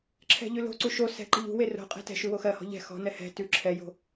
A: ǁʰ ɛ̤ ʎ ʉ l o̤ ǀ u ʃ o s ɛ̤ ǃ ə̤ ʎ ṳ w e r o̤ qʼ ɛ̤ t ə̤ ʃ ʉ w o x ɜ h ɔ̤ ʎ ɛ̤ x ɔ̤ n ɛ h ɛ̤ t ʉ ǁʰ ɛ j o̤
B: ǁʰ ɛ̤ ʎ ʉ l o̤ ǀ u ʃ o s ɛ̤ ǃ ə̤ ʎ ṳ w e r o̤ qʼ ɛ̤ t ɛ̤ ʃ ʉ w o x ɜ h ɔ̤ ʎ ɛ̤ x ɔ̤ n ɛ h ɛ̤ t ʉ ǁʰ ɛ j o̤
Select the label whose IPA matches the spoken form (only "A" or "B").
B